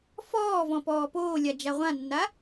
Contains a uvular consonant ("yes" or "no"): yes